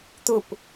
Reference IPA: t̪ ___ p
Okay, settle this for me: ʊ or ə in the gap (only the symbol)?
ʊ